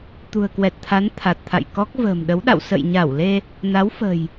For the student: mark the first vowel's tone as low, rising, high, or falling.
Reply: low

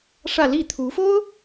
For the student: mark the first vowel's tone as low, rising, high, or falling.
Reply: falling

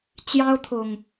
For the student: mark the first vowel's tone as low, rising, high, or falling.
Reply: high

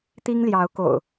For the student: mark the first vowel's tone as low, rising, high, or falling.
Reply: high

